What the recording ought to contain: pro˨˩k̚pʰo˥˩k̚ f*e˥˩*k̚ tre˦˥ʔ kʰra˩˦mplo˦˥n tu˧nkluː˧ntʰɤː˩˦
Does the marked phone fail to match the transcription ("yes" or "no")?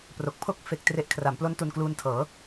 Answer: no